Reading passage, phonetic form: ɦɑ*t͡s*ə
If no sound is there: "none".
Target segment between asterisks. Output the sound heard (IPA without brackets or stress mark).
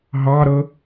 ɾ